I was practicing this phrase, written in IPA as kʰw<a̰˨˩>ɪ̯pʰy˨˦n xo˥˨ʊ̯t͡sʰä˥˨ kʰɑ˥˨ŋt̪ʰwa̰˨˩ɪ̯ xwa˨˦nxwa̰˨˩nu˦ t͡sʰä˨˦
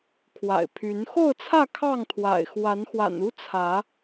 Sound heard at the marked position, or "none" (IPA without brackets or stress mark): a̰˨˩